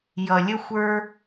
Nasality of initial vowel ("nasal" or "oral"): oral